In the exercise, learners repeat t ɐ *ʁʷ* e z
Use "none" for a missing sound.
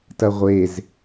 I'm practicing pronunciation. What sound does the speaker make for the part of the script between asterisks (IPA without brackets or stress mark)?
ʁʷ